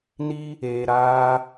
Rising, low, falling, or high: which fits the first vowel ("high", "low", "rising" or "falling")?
high